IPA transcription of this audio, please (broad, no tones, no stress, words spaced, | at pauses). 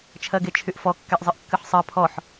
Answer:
t͡ʃʰɜɡet͡ʃʰyʔfɔ kːɛʔzˤɨʔkːɨħsˤɜ pʰɔħ